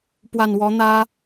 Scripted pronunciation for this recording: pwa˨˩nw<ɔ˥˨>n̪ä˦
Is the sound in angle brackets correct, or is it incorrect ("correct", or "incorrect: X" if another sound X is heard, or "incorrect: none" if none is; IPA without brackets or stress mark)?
incorrect: ɔ˨˦